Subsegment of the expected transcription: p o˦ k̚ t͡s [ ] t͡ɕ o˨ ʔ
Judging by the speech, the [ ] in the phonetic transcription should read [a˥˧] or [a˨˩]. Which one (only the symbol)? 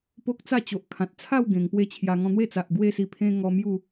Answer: a˥˧